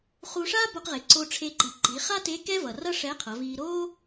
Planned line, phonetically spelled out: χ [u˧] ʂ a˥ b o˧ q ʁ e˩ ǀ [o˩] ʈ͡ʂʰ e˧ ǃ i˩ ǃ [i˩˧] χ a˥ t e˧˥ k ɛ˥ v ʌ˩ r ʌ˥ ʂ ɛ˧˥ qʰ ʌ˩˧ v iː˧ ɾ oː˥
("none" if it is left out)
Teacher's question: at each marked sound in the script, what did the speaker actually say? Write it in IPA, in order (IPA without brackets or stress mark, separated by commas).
u˧, o˧, i˩˧